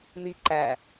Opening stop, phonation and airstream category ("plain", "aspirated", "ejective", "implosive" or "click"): click